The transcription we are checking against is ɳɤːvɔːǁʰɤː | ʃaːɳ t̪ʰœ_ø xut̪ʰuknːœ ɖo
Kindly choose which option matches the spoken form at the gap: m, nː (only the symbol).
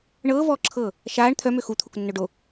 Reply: m